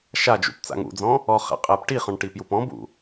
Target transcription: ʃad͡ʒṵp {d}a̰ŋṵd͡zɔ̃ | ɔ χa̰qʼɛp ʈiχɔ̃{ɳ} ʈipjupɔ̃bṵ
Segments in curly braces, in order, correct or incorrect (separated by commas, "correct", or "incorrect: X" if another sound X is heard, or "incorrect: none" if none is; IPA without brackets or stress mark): incorrect: t͡s, correct